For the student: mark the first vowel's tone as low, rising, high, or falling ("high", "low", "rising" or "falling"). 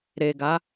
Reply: low